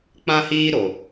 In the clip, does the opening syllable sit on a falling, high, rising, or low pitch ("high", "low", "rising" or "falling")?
high